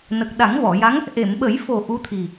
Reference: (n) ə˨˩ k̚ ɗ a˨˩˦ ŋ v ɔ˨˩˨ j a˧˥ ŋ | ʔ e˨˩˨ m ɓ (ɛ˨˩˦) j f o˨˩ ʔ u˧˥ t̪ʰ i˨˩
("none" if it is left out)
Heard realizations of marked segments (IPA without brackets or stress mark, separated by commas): n, ə˨˩˦